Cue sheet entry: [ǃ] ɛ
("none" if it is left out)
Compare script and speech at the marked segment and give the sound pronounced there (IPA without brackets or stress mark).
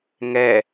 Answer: ŋ